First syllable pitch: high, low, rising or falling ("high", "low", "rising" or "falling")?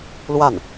falling